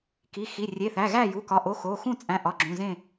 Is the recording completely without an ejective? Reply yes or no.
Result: no